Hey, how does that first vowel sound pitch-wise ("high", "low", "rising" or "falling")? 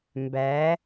rising